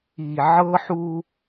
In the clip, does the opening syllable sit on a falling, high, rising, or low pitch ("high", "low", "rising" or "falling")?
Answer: low